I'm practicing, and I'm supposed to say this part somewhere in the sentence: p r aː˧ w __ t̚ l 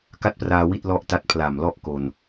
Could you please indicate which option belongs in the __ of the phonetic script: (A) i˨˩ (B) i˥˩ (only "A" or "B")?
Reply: B